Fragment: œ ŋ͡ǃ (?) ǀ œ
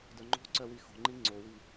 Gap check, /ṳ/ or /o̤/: o̤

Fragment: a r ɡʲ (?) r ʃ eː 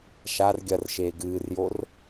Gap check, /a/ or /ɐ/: ɐ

